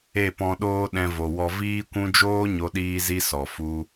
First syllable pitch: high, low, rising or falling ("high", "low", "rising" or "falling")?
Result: falling